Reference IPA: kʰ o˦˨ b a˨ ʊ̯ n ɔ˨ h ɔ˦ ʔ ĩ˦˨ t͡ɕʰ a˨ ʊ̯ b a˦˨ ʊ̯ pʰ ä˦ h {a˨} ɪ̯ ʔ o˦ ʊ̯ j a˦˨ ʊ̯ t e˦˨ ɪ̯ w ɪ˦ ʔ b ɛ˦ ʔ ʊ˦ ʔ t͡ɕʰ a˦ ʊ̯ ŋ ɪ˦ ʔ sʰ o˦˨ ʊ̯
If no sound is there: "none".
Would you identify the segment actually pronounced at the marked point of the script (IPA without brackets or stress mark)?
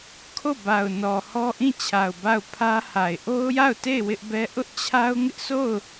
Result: a˨